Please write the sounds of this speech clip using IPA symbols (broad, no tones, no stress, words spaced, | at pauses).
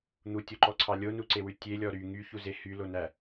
n̪utʲoǃɔǀʰɑ lʲonuǀewʉ tʲelʲɔ ɾy ŋyçuze hylonæ